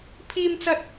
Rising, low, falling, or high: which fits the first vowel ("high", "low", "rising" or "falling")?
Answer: high